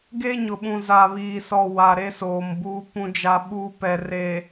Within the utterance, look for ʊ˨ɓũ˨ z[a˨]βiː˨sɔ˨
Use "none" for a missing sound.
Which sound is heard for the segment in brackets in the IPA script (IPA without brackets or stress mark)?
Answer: a˨